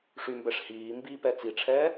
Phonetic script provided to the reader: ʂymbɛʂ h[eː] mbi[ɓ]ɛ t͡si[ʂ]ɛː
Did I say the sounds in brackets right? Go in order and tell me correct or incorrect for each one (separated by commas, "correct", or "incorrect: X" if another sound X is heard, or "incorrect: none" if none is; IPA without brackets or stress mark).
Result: incorrect: iː, incorrect: p, incorrect: ʈ͡ʂʰ